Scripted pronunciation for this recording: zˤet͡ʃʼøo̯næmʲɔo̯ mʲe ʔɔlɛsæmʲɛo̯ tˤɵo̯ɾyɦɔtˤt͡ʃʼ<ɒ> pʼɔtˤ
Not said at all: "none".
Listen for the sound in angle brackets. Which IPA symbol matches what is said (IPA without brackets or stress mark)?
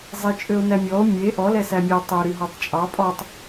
ɑ